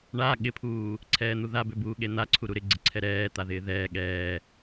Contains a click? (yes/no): yes